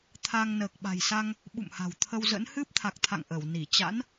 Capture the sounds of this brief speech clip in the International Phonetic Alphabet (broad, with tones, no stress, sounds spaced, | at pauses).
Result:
t̪ʰ a˧ ŋ n əː˨˩ k̚ ɓ a̤˨˩ j s a˧ ŋ | ɓ ṵ˧˨ m h a̤˨˩ w t̪ʰ ə˧ w z ə̰˧˥ n h ɨ˦˥ p̚ t̪ʰ a˨˩ k̚ t̪ʰ a̰˧˨ ŋ ʔ ə˧˩ w n i˧˩ t͡ɕ a̰˧˥ n